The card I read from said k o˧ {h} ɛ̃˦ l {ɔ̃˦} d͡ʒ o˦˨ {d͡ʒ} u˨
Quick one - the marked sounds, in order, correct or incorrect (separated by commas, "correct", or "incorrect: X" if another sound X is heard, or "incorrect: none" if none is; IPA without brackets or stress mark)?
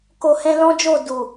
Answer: correct, correct, incorrect: d